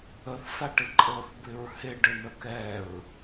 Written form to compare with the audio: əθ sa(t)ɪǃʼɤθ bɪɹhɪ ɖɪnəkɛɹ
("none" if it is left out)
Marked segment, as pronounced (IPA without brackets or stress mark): ʈ